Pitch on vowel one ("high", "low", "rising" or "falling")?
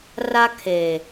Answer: high